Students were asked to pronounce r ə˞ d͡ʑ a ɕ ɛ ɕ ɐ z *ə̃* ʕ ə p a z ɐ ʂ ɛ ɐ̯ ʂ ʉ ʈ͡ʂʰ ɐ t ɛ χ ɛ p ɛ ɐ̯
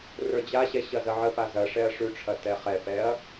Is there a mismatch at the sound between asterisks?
yes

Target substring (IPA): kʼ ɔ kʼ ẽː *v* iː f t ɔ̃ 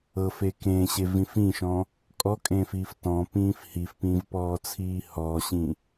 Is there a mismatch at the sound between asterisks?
yes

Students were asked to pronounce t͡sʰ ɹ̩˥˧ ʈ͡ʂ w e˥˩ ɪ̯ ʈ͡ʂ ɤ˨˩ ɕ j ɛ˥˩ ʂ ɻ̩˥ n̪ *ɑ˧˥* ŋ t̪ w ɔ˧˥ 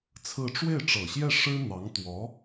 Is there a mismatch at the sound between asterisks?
no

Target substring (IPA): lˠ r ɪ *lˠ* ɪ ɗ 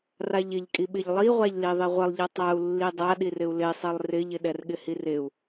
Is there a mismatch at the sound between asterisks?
yes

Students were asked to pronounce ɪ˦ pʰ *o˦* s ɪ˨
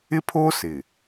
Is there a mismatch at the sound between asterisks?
yes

